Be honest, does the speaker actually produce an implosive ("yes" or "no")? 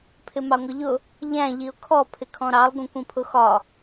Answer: no